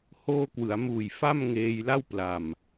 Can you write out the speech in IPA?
h oː˧ k w ɯ˩˦ a̯ m uː˨˩ j f a˥˩ m ŋ eː˧ j l a˥˩ w p l a˨˩ m

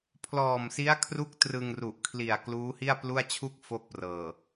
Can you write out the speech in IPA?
pʰ l ɔː˨˩ m s i˦˥ a̯ kʰ r u˥˩ k̚ t r ɯ˧ ŋ r u˨˩ ʔ kʰ l i˨˩ a̯ k l uː˦˥ h i˥˩ a̯ p l u˥˩ a̯ t͡ɕʰ u˥˩ k̚ f o˥˩ k̚ p r ɤː˨˩

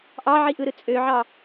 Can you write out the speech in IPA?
ʔ ɑ ʕ i ʔ ɯ ɾ ɯ t͡sʼ ø ʕ ɑ

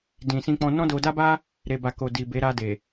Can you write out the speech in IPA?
d ĩ˨ s ĩ˧ k͡p ɔ̃˧ n ɔ̃˦ d o˧ d a˦ b a˦ | ɾ e˨ b a˨ k o˨ d i˨ b e˨˦ ɾ a˧ d e˨

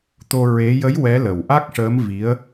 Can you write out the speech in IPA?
t̪ o˧ ɹ e˧˥ j ə˧˥ j w ɛ˧˥ l ə˨˩ w ʔ a˦˥ k̚ ʂ əː˧˥ m v i˧˥ ə̯

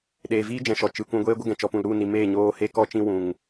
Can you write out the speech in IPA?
ɗ eː˨ v iː˦ d͡ʒ ɛ̃˨ ʃ ɔ˨ t͡ʃ ɨ˨ kʷ ũ˧ ɡʷ eː˦ ɡʷ ə˦ ɡ ɛ̃˨ t͡ʃ ɔ˧ p ũ˨ l ɾ u˦˨ n i˨ m eː˦˨ ɲ oː˧ h e˦ k ɔ˦ t͡ʃ ĩ˧ w ũ˨ ŋ

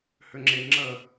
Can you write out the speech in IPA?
h ʏ ŋ͡ǁ e ŋ͡ǁ ə

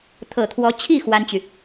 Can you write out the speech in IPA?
t̪ʰ ɤ˨˩ t̪ʰ w ɔ˧˥ t͡ɕʰ i˥˩ x w a˥ n t͡ɕ y˨

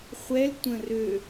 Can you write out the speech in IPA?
χʷ ɛ l tʷ ə̃ r ø

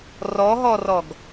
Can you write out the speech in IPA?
r ɔ ɦ ɔ r ɔ ɡ

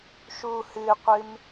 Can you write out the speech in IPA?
ʃ u h ɨ qʷ ɨ m

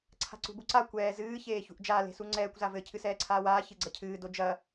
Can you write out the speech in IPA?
ǀʰ a̤ ǀ ṳ b u ǀ a kʷ ɛː z ɨː ç eː ç ṳ ʔ d͡ʒ a l e̤ s u ŋ͡ǀ ɛː kʷ z a v ɘ cʰ ɨ s ɛː ǀʰ aː w aː ç ɨ ɡ͡ǀ ɐ cʰ ɨː d o d͡ʒ ɐ

